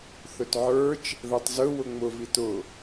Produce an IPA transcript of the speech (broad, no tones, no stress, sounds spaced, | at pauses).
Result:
θ ɵ t ʕ ə˞ t͡ʃ | ð ɜ tˤ z ɵ w ʊ ŋ͡m ʊ v i t ʊ